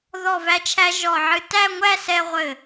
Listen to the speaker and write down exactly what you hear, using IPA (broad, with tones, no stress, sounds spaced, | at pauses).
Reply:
ð ɔ˧˩ v æ˧ t͡ʃʰ æ˧ ʒ ɔ˧˩ ʕ ɨ˧ t æ˥˧ ŋʷ æ˥˧ s ɛ˧ ʁʷ ɘ˧˩